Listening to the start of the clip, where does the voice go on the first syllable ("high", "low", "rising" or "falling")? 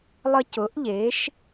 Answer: high